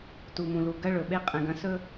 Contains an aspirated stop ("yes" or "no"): no